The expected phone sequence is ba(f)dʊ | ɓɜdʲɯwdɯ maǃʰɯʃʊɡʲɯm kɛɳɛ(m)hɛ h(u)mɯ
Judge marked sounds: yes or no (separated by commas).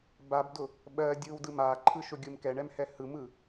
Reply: no, yes, no